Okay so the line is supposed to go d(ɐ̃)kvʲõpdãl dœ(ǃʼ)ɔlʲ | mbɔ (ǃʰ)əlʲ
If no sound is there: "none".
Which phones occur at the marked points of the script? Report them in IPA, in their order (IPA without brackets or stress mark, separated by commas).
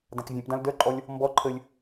ã, ǃʼ, ǃʰ